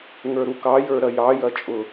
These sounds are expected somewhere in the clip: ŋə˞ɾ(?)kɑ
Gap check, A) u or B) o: A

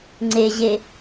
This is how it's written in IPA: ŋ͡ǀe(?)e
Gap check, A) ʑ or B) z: A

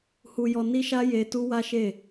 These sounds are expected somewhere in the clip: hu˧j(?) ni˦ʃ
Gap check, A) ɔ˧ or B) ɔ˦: A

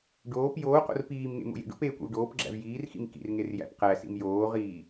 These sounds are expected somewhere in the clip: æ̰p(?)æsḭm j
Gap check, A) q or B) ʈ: A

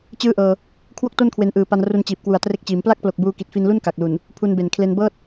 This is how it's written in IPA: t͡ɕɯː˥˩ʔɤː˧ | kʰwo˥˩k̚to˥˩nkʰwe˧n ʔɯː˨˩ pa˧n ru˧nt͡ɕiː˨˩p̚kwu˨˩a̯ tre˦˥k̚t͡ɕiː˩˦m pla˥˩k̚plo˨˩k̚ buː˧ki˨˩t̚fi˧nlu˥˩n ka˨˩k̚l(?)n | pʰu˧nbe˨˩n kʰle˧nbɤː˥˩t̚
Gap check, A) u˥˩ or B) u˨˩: B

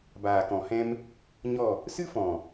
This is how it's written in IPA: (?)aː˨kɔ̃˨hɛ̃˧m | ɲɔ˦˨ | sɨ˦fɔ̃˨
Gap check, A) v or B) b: B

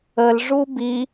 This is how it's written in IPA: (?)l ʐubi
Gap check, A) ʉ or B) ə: B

